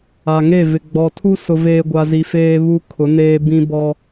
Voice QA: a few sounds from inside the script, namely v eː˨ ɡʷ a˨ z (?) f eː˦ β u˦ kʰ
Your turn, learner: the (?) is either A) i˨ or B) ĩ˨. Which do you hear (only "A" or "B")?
A